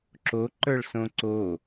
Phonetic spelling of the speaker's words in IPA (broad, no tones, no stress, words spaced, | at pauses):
ǁoǃə˞ɭsõ ǀo